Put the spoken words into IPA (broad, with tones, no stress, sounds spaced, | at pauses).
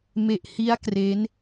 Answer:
m e˨˩ ʔ h i˦˥ a̯ k r e˦˥ n